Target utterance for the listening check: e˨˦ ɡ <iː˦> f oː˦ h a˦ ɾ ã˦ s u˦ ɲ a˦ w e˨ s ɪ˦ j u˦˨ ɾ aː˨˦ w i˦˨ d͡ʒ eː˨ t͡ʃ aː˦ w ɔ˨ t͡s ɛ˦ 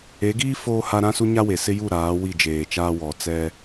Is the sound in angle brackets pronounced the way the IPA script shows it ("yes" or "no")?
yes